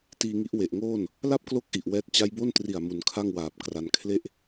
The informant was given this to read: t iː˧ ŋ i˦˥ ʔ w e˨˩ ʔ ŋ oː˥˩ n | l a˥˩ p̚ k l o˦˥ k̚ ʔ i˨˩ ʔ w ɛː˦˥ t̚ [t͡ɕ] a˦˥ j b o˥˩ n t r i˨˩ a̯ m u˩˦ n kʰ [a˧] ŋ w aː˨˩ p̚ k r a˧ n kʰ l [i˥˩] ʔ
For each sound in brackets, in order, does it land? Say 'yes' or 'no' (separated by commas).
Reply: yes, no, no